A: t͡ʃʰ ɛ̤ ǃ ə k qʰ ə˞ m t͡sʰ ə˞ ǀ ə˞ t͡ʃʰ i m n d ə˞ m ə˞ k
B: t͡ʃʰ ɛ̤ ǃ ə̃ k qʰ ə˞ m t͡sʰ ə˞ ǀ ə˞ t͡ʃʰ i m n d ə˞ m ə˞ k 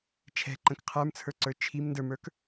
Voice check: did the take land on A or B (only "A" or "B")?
B